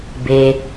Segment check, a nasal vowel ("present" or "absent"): absent